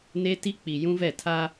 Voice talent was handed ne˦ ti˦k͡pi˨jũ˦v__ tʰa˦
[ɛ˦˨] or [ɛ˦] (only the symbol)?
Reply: ɛ˦˨